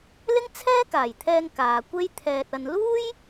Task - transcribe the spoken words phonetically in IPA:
l ɪ˥ ŋ t͡sʰ ɛː˥ k aː˨˩ j t̪ʰ ɛː˧ ŋ k aː˨ kʷ e˥ j t̪ʰ ɛː˧ t̚ ɐ˨ n l uː˥ j

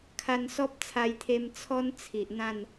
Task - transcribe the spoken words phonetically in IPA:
kʰ a˧ n s ɔ˦ p̚ t͡sʰ a˧ j t̪ʰ e˧ m t͡sʰ ɔ˦ n t͡sʰ i˨ ʔ n̪ ã˥˧ n

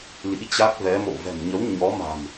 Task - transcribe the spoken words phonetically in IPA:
l ḭ˧˥ t͡ɕ a˦˥ k̚ v ɛ˨˦ m o̰˧˨ v ɛ̤˨˩ m ɲ ə˨˦ w ɲ ɔ˨˦ m a̤˨˩ m

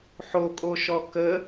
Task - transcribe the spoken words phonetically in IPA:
ħ o kʼ o ʃ ɔ k ə

